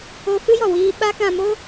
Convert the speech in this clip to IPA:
o˦ fɨ˦jɔ˨wiː˧ɓa˦ kã˧mo˦

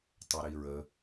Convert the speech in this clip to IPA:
tˤeɾiɹə

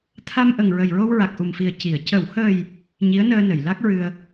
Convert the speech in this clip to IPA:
t̪ʰa˧mʔə˨˩ŋ ɹə˨˩jɹo˧w ɹa˨˩k̚ʔu˨˩mfi˨˩ə̯ ci˨˩˨ə̯ cə˨˩˨whəː˨˩j | ɲi˧˥ə̯nəː˧nə˨˩˨j la˦˥k̚ɹɨ˧ə̯

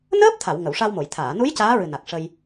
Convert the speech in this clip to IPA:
nəː˦˥p̚t̪ʰa˨˩˨w ŋə˨˩˨wʂa˧wmo˨˩˨j t̪ʰaː˨˩˨nu˧˥j caː˧˥ɹɨ˨˩na˨˩k̚ ʂə˧j

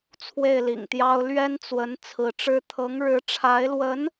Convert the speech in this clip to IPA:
t͡sʰwe˥˩ɪ̯lḭ˨˩ŋt̪jɑ˥ʊ̯ lɥɛ˥nt͡swə˧˥n t͡sʰɹ̩˧˥ʈ͡ʂɻ̩˥ t̪ʰɤ˧˥ŋɻɻ̩˧˥ʈ͡ʂʰa˧˥ɪ̯lwə˧˥n

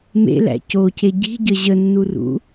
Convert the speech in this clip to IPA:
mḛlæ̰ coce ɟi̤ɟə ʑənːurṵ

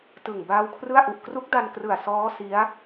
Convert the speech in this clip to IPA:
tɯ˨˩ŋ baː˦˥wkʰrɯ˥˩a̯ʔu˨˩ʔ kru˦˥k̚da˧nkrɯ˨˩a̯ sɔː˦˥ si˦˥a̯

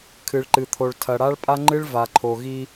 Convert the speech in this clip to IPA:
kʰɨ˨ɭǃɨ˨t̪ʰo˨ɭ tʰɐ˨ɽa˦ɭpʼa˦ŋ͡ǃɨ˦ɭ va˨ǃʰo˨ ɣi˦

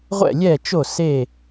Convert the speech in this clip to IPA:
ʁʷɛ̰˥˨lʲɛ˥˨t͡ʃo˥˨ se˥˨

